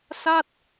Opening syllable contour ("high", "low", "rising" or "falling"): falling